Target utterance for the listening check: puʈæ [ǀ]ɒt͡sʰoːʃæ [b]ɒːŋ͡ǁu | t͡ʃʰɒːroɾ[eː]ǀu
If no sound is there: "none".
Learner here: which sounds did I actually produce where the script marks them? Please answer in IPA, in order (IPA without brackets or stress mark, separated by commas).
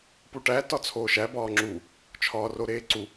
t, b, eː